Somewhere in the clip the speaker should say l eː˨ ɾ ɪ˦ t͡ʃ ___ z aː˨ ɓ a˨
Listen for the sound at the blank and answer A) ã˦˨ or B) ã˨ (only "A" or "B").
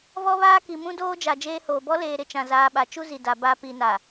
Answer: B